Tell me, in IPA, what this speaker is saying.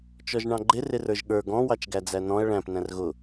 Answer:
t͡ʃ ɔ ʒ ɳ ɑ̃ ɡ͡ǃ ɪ r ɪ r ə˞ ʒ ɠ ə˞ ɡ ɔ̃ w ɑ t͡ʃ ɡ æ d͡z æ n ɔ̃ ɐ̯ ɭ æ̃ p n æ̃ r ɣ ʊ

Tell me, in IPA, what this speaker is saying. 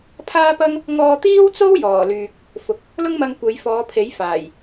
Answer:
pʰ aː˥ p ɐ˥ ŋ | ŋ ɔː˧ t̪ iː˥ w t͡s o˥ w j ɔː˨˩ l yː˨ k̚ | f ʊ˨ k̚ | l ʊ˥ ŋ m ɐ˧ ŋ kʷ e˨˧ j f ɔː˨˧ pʰ e˨˥ j f aː˨˩ j

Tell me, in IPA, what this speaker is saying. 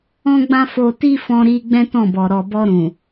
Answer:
ɔ̃˦ ɡ͡b ã˦ f o˧ t i˦ f ɔ̃˧ ɾ i˧ ɡ͡b ɛ̃˦ t ɔ̃˦˨ b ɔ˨ ɾ ɔ˨ b ɔ˧ ɾ ũ˨

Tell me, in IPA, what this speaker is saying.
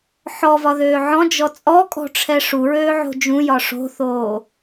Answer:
ħ ɔ v ɒ ð øː ʕ ɔ̃ d͡ʒ ɔ t͡sʼ ɔ kʼ ɔ̤ ʈ͡ʂʰ ɛ ʂ u ɹ øː ʕ o̤ d͡ʒ ũ j ɒ ʂ o̤ θ oː

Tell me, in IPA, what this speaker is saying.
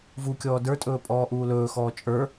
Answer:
v u kʲ ɔː d ə˞ tʼ ɵː pʼ ɔː ʔ uː l ɵː x ɔː t͡ʃʼ ə˞

